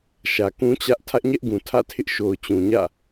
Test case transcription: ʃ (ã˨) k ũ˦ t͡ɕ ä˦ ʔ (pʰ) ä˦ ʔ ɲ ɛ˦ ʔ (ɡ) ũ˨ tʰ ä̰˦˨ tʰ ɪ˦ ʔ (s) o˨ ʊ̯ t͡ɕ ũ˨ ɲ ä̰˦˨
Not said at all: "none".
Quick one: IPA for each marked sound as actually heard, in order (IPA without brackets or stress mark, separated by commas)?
ä˨, tʰ, ɡ, ʃ